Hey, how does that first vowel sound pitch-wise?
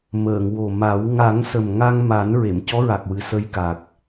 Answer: low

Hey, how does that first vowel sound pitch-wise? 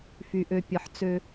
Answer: low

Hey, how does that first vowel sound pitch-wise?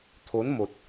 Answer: rising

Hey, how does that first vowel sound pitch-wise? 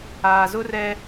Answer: low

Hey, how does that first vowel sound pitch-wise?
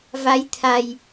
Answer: rising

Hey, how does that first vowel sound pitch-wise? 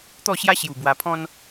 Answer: falling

